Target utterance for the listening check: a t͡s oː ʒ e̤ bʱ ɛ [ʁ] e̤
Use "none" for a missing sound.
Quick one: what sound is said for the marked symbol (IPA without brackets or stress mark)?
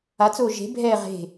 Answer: ʁ